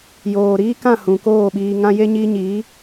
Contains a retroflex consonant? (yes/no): no